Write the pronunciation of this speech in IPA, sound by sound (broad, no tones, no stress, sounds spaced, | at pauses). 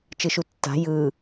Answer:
t͡ʃ ɯ ʃ u tː a̤ j ɯ